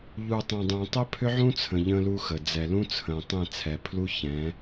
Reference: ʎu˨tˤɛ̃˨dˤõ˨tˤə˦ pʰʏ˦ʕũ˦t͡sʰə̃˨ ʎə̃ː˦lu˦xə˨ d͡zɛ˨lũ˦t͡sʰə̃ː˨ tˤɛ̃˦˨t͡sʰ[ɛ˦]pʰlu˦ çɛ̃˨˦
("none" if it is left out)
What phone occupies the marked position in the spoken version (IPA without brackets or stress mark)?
ɛ˨